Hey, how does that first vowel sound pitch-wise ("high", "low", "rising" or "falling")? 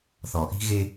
low